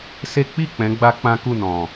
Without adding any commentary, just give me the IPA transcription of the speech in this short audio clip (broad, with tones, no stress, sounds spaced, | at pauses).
s e˦ k͡p i˦˨ k͡p ɛ̃˨˦ ɡ͡b a˦ k͡p ã˦ k u˦˨ n ɔ̃˨